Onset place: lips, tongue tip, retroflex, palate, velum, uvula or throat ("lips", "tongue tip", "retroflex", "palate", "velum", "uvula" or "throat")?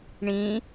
retroflex